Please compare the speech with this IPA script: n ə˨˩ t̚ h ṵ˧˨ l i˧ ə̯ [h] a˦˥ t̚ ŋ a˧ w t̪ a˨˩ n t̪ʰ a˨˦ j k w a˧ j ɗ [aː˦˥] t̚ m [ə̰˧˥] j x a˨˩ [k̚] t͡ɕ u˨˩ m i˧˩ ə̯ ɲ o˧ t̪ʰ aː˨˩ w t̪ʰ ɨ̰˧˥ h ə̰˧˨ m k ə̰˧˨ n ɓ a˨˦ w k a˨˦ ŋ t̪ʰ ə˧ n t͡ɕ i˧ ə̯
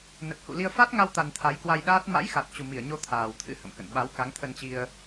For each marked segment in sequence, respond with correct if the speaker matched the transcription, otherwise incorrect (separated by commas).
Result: incorrect, correct, incorrect, incorrect